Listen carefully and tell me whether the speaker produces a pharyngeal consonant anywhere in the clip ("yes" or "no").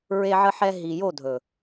yes